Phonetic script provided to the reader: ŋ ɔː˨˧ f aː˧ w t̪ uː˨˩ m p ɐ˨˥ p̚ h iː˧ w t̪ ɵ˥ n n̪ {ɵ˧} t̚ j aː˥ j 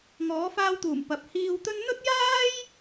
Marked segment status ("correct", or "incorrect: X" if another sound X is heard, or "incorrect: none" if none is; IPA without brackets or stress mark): incorrect: ɵ˥